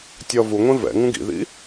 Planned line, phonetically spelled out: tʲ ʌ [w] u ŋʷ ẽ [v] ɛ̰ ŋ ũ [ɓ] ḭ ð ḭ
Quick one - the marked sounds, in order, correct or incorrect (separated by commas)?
incorrect, correct, incorrect